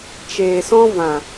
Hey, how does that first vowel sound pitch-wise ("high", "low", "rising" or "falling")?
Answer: low